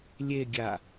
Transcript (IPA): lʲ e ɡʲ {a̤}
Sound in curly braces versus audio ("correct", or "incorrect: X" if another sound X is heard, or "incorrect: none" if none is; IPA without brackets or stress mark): incorrect: a